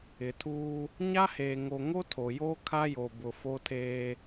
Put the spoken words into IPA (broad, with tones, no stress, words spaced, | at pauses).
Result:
ɪ˨tʰuː˦ | ɲa˦heː˨ŋo˨ŋo˦ tʰo˨joː˦ kʰa˦jo˨ bʊ˨fo˦tʰeː˦